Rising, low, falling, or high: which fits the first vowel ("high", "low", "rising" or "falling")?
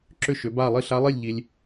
falling